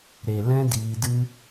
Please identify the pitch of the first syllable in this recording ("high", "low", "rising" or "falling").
low